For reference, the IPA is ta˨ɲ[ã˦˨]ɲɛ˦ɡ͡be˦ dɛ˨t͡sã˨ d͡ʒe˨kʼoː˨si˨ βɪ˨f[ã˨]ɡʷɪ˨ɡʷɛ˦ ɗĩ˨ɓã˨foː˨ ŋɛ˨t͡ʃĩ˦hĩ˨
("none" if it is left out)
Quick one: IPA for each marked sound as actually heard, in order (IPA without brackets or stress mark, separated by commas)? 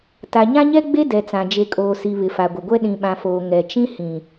ã˦, a˨